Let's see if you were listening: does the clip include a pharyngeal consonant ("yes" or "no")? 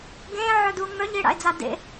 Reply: yes